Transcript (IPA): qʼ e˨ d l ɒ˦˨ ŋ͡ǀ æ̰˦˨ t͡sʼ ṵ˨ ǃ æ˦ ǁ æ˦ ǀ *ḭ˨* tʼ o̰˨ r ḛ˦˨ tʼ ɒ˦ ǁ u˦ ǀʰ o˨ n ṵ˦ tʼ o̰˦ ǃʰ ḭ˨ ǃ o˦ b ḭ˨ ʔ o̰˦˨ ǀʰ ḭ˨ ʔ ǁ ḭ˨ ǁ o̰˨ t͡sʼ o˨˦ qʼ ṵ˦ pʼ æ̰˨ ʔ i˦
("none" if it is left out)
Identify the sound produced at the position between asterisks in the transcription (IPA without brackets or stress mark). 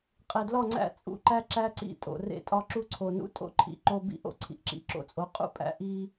ḭ˦˨